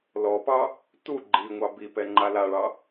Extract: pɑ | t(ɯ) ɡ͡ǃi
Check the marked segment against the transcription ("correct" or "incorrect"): incorrect